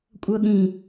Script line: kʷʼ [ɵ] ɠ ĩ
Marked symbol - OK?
no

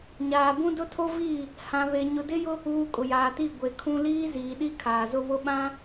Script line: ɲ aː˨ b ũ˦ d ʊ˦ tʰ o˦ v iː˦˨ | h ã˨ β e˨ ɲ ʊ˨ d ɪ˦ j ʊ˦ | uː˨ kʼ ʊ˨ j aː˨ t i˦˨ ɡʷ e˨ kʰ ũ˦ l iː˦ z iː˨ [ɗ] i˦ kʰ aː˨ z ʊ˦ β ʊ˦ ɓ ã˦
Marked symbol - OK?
yes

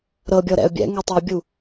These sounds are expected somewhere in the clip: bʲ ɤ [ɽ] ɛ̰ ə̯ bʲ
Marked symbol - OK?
no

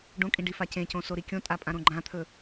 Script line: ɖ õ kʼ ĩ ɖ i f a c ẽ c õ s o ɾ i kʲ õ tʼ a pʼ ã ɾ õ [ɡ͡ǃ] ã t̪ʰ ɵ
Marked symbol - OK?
yes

